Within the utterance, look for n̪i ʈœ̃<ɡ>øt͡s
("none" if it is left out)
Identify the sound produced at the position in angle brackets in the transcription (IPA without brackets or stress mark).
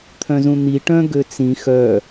ɡ